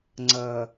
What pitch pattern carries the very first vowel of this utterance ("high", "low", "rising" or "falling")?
low